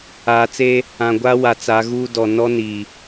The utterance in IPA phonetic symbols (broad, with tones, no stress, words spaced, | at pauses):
aː˨t͡se˦ | ã˨ɡʷa˦ wa˨t͡sa˨˦ɣuː˦dɔ˨ nɔ˦ni˨